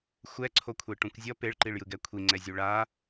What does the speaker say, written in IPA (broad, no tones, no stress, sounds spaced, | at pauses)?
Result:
xʷ ɛ ǀʰ o kʷʰ e ʈ ũ kʷ zʲ ʌ p e ɭ ǃ i ɭ j ɯ ɡ ɛ kʷʰ i ŋ͡ǀ ɛ zʲ u ɭ a